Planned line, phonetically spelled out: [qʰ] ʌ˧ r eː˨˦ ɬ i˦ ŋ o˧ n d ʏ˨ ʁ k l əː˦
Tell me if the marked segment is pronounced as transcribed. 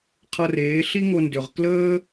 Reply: yes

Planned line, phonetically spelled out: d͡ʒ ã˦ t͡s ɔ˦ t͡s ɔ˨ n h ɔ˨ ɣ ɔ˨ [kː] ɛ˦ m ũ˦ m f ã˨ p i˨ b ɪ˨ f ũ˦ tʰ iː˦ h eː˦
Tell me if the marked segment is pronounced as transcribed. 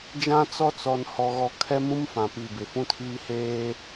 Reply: no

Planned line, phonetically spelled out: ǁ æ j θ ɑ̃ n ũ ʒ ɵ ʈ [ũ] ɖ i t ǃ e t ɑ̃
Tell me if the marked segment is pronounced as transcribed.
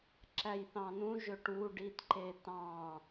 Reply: no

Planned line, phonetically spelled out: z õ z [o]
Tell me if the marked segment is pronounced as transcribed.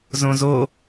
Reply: yes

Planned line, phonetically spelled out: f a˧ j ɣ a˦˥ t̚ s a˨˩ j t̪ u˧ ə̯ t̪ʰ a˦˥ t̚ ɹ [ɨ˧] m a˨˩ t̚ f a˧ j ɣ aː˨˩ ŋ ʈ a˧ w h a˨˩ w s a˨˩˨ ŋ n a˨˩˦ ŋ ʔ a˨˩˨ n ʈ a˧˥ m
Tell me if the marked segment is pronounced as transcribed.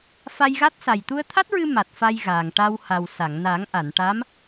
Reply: yes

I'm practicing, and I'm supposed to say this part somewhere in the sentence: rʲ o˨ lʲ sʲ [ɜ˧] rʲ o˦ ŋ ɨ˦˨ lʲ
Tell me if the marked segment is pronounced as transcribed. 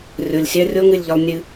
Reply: yes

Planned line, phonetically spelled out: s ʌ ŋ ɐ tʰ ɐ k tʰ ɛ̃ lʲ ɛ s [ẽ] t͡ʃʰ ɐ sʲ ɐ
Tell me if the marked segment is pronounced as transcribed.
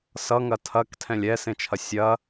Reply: yes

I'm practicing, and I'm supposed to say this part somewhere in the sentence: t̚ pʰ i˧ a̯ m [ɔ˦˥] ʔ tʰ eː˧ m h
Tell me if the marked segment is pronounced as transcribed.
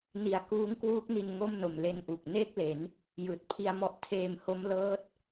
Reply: yes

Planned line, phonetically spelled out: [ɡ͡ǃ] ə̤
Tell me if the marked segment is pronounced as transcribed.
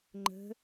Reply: no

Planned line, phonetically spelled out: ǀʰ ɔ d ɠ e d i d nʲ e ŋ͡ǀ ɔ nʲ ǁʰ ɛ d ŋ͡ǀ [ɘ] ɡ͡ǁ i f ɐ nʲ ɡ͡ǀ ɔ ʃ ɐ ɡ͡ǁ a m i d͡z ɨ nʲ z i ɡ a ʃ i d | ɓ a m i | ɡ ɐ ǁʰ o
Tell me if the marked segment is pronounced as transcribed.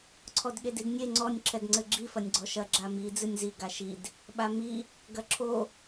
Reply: yes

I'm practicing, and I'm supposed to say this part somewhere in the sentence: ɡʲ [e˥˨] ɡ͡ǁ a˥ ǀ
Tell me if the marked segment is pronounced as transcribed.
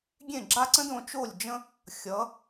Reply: no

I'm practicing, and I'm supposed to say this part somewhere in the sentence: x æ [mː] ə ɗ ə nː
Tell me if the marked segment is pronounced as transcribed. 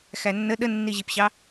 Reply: no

